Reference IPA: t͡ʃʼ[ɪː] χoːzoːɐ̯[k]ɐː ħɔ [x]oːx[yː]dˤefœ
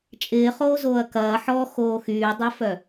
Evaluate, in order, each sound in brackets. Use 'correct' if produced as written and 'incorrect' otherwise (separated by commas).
correct, correct, correct, correct